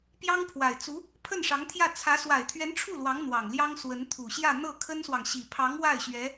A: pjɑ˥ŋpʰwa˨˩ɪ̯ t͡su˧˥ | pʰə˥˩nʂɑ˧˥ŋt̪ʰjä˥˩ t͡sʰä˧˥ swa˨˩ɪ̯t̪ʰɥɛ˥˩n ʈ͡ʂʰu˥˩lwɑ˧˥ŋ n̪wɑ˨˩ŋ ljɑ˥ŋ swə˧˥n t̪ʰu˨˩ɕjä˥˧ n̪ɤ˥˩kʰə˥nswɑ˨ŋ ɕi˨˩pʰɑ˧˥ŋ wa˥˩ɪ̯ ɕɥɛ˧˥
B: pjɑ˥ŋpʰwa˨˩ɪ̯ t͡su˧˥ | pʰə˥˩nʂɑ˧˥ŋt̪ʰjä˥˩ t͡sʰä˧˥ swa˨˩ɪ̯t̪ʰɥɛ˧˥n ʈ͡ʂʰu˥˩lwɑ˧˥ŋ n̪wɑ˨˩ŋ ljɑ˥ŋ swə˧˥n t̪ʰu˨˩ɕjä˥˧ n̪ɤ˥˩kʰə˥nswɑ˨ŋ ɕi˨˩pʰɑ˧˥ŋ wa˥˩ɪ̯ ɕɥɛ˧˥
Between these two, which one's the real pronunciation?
B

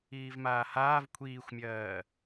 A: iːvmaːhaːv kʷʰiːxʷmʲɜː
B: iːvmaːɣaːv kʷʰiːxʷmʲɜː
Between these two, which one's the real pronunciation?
A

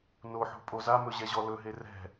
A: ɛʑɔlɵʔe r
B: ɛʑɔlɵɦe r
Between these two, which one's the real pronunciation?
B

